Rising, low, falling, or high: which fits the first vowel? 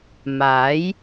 rising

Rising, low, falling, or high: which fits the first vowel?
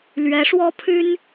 rising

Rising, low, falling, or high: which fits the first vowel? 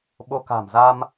rising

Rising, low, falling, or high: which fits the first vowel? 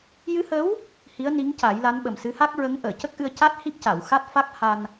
rising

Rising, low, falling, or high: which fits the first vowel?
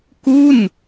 falling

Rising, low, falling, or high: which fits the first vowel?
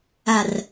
low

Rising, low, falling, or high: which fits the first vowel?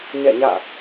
falling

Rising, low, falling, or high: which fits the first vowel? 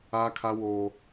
high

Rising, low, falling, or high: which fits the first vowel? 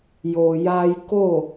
low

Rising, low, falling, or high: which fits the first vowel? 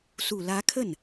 low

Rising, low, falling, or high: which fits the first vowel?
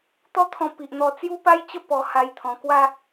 high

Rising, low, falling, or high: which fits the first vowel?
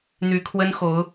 rising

